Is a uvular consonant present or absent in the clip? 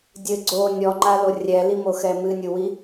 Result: absent